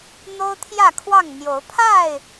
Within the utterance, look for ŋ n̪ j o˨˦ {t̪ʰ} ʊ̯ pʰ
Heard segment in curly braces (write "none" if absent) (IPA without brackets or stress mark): none